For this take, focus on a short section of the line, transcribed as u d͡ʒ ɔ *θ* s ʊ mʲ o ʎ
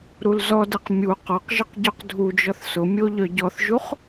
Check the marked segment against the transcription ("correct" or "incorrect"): correct